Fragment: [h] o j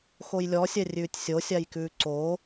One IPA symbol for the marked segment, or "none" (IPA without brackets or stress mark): x